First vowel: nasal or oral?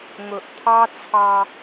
oral